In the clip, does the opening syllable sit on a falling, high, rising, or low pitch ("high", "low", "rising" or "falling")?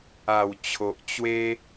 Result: low